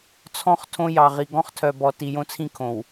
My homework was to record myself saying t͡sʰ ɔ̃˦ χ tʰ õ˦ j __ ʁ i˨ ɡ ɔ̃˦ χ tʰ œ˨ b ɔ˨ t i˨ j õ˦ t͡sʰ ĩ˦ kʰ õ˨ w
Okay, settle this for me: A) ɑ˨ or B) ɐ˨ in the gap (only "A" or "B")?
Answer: A